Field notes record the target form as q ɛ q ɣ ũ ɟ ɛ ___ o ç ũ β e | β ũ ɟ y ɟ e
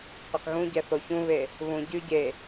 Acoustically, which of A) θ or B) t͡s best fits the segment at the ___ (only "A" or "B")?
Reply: A